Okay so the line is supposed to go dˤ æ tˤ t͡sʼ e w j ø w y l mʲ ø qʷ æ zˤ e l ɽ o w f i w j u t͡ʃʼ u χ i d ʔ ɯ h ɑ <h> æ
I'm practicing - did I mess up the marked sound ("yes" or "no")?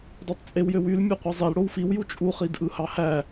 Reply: no